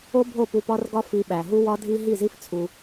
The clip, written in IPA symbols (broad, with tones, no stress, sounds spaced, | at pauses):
o˦ bʱ o˦˨ p u˧ p ɒ˦ r ɡ ɒ˦ f i˧ ɓ æ˨ ɦ u˦ w ɒ˦ dʱ i˦ ɦ i˦˨ z i˦ f t͡sʰ u˧